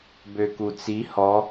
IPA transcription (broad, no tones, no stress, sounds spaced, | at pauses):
b ø k u t͡s i h ɔ